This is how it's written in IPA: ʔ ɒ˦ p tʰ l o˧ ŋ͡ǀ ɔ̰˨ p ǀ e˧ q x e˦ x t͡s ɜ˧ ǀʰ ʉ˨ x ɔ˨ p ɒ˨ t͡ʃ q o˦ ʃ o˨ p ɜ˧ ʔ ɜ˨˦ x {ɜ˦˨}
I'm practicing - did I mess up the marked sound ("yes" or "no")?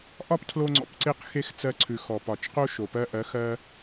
yes